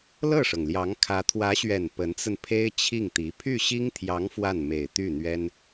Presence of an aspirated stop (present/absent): present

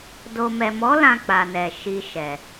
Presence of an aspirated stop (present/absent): absent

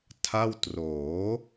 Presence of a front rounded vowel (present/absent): absent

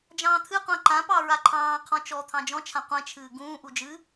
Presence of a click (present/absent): present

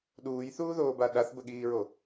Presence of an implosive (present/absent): present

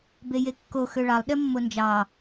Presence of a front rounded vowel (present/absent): present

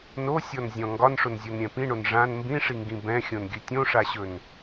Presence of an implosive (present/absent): absent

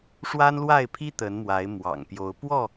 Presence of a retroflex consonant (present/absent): present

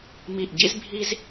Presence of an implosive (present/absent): absent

